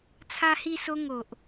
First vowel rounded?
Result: no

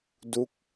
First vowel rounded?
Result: yes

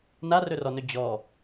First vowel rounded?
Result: no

